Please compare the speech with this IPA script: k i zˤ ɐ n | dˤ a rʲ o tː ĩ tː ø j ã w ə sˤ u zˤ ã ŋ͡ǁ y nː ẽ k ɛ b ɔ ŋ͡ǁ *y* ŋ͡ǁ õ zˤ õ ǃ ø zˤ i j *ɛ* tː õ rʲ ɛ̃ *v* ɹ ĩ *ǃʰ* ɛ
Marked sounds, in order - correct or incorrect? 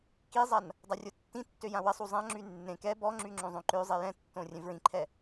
correct, incorrect, correct, correct

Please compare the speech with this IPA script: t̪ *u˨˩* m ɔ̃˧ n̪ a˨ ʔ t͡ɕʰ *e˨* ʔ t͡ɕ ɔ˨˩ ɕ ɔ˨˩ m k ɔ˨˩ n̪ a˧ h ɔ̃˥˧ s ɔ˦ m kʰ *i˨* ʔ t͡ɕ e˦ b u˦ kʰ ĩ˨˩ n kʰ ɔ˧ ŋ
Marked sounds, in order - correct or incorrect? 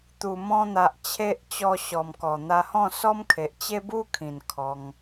correct, correct, incorrect

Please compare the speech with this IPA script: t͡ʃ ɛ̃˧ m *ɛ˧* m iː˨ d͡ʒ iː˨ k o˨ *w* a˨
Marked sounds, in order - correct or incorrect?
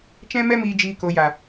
correct, incorrect

